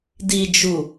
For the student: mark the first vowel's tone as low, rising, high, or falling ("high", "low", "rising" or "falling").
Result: low